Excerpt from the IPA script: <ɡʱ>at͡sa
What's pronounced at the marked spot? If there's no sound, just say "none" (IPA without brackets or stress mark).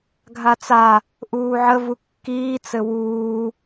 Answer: ɡʱ